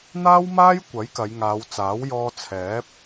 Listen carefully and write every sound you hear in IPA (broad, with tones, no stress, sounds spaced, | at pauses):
n̪ aː˥ w m aː˥ j kʷ ɐ˨˥ j k ɐ˨˧ j ŋ aː˨˧ w t͡s aː˨˥ w j ɔː˥ t͡sʰ ɛː˨˥ p̚